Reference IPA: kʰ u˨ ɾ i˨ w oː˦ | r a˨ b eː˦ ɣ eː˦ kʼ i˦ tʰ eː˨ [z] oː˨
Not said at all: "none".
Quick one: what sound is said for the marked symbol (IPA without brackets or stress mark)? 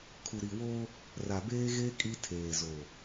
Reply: z